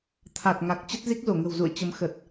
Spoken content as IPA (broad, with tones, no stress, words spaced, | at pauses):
t̪ʰa˨˩t̚ŋa˨˩k̚ t͡ɕə˦˥t̚zi˦˥k̚zo˧˩ ŋə̤˨˩wzṵ˧˨ə̯ t͡ɕə˨˦m xə˨˩t̚